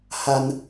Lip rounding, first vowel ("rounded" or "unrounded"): unrounded